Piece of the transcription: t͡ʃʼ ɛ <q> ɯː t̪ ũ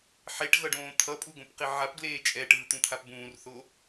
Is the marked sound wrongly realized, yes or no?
yes